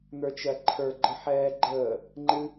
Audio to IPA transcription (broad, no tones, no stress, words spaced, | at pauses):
n̪ə˞t͡ʃɜǃʰə˞ ɡ͡ǃəħɛːɡ͡ǃəː | ŋ͡ǃɨ